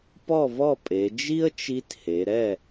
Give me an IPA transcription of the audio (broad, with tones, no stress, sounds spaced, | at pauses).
p ɔ˥˨ v ɔ˥˨ pʼ e˩˧ d͡ʒ i˥ ə̯ t͡ʃ i˧˥ t h e˩˧ ɾ ɛ˥˨